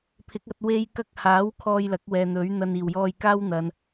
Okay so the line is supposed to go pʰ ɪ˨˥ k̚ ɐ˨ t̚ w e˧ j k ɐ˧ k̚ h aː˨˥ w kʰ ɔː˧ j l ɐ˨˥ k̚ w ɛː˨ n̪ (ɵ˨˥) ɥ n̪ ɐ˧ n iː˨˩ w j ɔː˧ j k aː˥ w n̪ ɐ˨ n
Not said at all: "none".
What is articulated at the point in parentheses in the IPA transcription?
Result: ɵ˨˥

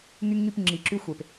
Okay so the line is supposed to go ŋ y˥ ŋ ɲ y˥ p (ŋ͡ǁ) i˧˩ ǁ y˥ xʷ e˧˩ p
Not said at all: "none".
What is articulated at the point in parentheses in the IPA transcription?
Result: ŋ͡ǁ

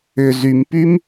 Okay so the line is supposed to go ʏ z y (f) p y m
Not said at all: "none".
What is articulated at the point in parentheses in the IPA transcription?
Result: m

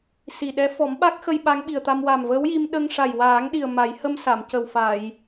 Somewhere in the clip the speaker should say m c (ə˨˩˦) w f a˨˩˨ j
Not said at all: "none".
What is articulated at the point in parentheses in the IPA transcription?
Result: ə˨˩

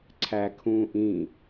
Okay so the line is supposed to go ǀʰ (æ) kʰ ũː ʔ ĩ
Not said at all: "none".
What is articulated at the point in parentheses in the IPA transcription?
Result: æ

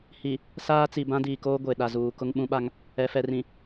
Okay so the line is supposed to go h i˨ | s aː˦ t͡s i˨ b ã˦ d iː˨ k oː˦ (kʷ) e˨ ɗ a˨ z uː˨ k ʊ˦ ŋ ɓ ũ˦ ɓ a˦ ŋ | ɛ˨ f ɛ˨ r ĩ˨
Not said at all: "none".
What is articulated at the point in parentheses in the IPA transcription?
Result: ɡʷ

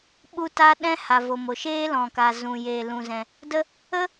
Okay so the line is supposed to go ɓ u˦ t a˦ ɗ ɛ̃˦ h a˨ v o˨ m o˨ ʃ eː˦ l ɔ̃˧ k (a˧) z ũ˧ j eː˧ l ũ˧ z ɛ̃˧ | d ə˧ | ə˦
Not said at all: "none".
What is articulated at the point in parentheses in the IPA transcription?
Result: a˧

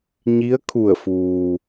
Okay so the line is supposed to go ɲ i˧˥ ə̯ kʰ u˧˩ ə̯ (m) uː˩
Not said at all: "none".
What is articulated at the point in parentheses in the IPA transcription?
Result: f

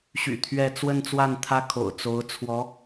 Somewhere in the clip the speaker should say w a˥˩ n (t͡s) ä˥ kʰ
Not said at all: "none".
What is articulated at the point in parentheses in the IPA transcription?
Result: t̪ʰ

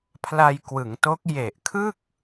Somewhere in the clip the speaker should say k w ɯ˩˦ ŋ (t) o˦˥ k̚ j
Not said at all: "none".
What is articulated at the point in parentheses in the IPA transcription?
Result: t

